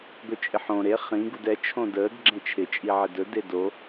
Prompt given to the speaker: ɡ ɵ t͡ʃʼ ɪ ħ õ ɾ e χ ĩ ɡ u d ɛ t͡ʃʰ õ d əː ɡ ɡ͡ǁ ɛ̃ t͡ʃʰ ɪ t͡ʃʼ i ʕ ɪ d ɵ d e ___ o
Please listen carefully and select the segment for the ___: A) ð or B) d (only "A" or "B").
B